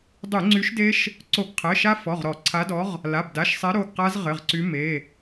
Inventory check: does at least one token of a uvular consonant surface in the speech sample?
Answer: yes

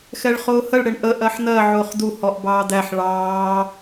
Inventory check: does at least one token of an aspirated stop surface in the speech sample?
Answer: no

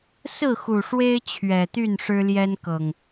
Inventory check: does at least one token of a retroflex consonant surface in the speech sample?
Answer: yes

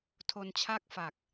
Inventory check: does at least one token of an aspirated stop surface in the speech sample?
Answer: yes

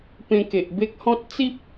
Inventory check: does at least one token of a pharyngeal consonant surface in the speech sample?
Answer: no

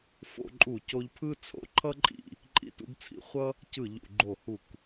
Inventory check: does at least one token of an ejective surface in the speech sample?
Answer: yes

